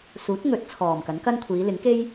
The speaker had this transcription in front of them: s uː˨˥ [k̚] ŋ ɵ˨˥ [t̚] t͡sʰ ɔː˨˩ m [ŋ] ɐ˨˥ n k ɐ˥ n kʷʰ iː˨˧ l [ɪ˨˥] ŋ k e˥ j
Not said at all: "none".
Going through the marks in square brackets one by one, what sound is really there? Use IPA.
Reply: t̚, t̚, k, ɪ˨˥

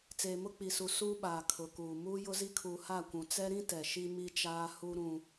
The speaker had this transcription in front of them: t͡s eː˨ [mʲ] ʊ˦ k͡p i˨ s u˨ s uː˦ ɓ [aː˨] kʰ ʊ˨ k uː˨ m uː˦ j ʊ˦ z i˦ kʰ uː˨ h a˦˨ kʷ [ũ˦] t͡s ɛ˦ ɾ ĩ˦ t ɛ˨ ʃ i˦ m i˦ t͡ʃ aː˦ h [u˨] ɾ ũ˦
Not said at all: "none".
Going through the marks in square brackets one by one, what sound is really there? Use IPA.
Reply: m, aː˨, ũ˨, u˦

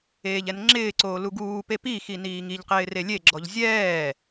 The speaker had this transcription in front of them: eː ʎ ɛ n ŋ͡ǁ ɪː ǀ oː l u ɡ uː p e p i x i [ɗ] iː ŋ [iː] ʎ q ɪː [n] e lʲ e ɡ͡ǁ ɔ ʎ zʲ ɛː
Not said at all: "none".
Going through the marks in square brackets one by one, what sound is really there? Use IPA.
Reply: n, i, r

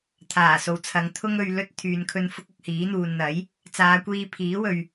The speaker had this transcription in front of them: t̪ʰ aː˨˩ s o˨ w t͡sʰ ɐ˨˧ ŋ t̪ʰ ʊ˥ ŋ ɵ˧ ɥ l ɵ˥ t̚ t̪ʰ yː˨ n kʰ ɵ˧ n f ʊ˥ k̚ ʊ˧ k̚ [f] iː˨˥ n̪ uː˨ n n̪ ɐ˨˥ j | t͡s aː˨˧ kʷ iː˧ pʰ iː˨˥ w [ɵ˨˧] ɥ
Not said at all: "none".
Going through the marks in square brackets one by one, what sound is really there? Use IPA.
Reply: h, ɵ˨

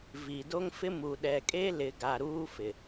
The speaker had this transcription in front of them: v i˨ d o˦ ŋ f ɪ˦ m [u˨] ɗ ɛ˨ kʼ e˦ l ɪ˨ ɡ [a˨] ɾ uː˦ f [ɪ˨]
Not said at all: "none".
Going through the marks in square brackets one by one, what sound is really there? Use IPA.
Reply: u˨, a˨, ɪ˨

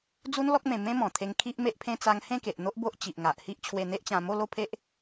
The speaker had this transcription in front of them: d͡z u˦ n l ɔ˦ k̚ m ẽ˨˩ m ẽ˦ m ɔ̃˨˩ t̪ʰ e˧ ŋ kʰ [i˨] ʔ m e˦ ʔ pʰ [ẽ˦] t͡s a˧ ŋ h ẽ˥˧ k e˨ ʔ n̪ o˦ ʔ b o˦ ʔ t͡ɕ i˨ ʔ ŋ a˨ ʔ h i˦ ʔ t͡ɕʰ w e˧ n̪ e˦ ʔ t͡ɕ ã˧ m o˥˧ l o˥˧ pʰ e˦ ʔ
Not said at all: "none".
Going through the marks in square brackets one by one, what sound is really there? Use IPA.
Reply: i˦, ẽ˦

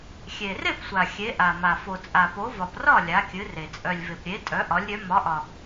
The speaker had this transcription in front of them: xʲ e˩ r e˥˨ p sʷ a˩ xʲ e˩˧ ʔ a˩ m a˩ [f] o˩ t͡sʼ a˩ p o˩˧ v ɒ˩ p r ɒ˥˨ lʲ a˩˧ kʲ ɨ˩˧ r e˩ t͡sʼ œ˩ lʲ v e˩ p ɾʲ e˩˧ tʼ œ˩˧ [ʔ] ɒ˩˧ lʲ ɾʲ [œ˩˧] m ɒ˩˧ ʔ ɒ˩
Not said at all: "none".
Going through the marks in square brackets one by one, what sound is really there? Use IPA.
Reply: f, ʔ, œ˩˧

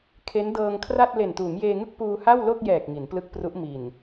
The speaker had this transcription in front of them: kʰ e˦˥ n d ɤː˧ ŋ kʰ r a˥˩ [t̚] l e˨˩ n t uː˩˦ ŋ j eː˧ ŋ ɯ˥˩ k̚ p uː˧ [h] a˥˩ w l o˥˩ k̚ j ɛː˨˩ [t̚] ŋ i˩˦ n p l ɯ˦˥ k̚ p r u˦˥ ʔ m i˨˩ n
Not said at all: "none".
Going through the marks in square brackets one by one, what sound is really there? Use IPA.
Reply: t̚, h, k̚

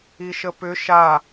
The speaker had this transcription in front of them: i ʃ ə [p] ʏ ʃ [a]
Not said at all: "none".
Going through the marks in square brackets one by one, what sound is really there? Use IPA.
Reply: p, a

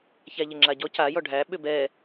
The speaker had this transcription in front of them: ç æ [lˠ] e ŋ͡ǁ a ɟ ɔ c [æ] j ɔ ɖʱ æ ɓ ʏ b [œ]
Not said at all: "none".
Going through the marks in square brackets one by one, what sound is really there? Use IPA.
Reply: ʎ, a, ɛ

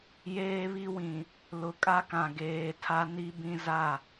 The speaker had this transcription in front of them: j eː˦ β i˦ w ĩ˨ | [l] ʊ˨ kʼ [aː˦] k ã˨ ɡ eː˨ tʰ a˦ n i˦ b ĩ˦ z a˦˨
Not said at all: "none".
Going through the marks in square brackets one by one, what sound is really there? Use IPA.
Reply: l, a˦

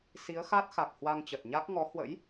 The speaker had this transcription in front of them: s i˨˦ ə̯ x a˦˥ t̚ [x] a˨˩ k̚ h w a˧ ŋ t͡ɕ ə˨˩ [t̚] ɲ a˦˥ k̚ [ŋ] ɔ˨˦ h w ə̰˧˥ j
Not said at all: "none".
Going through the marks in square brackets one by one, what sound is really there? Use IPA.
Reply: x, t̚, ŋ

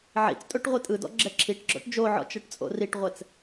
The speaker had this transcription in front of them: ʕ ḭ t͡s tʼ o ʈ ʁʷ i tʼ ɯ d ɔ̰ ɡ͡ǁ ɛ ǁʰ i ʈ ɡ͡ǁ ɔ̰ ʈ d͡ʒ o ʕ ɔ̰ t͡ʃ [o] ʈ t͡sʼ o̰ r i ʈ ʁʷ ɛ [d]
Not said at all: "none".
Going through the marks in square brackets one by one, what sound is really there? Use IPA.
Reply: ɤ, t͡s

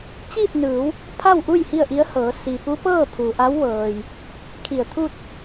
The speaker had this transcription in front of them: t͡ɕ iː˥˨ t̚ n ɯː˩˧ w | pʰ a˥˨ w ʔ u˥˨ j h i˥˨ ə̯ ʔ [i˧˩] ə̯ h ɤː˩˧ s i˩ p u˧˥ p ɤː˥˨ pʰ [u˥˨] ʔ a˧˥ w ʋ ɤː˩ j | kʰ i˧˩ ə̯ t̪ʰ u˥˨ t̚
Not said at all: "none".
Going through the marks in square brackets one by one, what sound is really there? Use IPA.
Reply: i˧˥, u˩

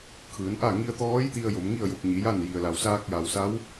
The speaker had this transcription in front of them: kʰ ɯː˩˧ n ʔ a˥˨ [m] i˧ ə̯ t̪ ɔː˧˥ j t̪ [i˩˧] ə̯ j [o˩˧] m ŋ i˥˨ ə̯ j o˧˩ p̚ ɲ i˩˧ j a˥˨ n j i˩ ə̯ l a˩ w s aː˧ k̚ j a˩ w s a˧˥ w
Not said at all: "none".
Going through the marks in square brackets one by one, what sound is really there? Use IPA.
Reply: ŋ, i˧, o˩˧

